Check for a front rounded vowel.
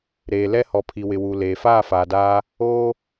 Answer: absent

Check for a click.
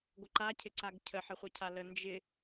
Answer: present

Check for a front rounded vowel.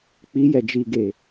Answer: absent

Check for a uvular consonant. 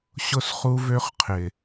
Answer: present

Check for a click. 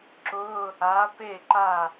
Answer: present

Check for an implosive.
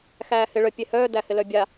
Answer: absent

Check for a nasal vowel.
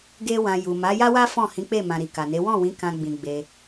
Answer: present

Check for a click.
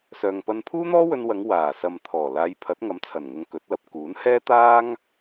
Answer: absent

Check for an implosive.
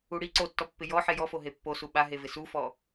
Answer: present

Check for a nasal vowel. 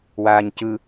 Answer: absent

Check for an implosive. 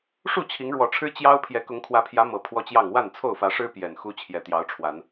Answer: absent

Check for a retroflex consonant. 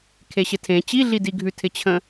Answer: absent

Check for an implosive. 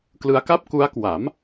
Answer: absent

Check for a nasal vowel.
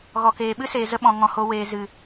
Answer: present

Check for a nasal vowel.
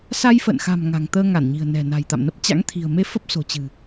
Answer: absent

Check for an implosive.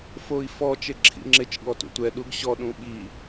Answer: present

